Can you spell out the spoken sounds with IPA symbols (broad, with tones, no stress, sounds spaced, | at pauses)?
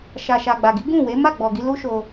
ʃ a˨ ʃ a˨ ɡ͡b a˨ ɡ i˨˦ ɡ ũ˦˨ w e˨˦ m a˦˨ ɡ͡b ɔ˨ ɡ i˧ l u˦ ʃ o˧